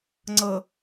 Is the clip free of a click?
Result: no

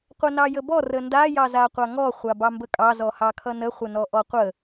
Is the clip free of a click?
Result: yes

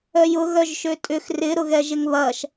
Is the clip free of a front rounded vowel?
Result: no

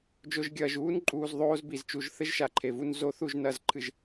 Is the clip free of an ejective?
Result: no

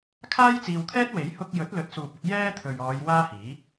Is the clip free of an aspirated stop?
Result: no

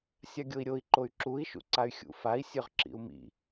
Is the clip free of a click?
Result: no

